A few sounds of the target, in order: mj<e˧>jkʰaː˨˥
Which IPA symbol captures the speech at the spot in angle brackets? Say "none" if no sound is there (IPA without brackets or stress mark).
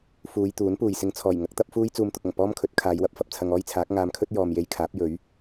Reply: e˧